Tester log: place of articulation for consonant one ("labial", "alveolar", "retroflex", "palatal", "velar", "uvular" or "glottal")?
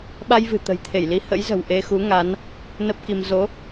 labial